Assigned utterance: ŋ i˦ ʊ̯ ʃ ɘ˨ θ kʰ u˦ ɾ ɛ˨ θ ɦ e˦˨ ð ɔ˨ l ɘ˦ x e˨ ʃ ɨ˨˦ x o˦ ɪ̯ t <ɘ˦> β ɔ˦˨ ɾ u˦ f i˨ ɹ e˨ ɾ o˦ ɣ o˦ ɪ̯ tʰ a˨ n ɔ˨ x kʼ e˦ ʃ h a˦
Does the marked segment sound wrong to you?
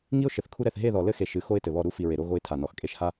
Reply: yes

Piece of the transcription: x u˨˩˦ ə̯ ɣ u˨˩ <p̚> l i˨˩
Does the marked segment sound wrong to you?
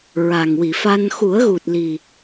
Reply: yes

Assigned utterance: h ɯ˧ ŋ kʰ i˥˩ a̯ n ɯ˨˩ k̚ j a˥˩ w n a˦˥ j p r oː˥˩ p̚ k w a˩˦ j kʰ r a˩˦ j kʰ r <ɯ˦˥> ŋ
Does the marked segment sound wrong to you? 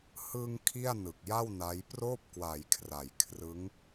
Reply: no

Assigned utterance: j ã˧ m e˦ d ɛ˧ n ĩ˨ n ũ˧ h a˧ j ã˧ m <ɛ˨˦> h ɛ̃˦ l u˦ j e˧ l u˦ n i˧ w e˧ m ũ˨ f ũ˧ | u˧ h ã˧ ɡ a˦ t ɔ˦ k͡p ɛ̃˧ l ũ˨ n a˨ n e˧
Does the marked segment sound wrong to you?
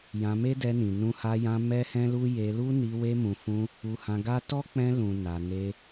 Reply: yes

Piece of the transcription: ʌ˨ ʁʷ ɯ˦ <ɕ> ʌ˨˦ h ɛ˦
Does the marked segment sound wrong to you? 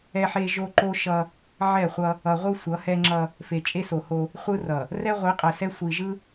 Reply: yes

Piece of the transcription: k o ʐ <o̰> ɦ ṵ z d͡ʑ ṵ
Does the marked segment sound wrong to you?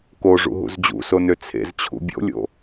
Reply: yes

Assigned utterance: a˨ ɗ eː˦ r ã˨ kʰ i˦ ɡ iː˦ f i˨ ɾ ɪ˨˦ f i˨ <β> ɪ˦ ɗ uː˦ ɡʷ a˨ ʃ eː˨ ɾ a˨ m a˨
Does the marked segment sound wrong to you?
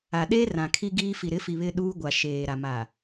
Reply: no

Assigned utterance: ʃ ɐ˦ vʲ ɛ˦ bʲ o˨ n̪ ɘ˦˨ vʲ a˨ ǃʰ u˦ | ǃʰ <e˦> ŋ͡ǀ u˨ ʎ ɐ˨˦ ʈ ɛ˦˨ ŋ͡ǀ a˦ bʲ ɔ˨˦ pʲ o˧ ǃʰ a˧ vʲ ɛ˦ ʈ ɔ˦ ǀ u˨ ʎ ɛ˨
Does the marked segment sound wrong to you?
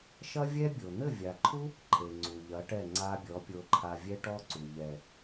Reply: yes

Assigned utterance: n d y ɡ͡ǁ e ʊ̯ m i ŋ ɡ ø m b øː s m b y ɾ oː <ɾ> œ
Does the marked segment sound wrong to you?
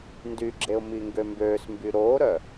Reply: no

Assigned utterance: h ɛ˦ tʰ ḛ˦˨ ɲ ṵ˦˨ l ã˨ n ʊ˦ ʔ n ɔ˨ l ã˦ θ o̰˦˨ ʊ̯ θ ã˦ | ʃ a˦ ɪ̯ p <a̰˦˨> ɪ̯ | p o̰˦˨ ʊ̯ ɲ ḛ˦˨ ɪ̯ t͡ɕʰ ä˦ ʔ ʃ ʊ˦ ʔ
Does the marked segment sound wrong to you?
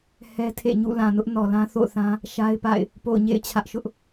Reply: no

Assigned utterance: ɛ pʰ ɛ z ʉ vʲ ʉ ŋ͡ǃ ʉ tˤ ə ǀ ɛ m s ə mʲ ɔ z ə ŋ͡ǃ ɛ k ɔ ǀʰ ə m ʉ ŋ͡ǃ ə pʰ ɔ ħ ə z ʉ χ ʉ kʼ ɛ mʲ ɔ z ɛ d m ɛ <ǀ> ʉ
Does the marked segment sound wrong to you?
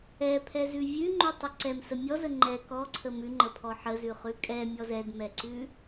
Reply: no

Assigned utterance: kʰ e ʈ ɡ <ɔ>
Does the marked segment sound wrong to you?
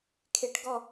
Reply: no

